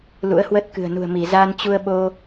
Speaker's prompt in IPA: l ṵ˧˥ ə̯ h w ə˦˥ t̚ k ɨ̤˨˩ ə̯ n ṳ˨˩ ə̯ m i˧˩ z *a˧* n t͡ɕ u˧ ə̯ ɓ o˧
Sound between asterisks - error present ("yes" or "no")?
no